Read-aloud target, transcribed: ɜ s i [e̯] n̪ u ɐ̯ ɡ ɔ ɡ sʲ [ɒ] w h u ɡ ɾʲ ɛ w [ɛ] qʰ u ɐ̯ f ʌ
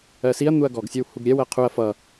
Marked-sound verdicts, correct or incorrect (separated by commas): incorrect, correct, incorrect